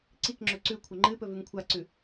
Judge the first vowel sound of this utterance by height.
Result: high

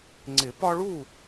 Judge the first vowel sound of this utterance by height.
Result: high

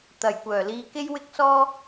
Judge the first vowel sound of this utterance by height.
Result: low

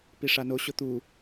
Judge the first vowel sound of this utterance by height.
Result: high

